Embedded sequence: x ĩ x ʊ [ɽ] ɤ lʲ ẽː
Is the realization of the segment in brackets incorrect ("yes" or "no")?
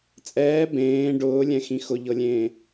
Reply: yes